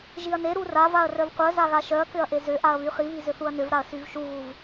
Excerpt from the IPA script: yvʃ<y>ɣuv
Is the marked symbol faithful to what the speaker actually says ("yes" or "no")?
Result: no